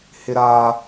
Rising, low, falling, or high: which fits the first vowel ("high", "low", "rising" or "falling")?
high